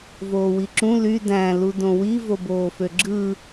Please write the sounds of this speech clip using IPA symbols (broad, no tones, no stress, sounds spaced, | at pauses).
v oː w i ǁ ũ l y d æ̃ l u d õ w i v o b oː f ø ɡ͡ǁ ɯ